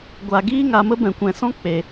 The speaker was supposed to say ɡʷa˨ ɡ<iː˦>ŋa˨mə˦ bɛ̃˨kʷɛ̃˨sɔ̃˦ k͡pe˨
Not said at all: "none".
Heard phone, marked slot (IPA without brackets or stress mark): iː˦